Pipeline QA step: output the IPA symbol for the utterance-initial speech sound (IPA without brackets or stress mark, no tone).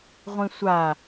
ʁʷ